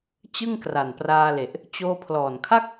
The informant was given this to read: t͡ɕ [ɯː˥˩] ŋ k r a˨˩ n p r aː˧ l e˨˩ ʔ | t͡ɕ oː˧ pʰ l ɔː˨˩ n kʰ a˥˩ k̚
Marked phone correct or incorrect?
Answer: incorrect